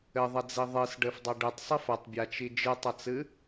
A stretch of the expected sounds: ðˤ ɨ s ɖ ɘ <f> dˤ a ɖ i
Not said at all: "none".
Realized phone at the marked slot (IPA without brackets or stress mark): f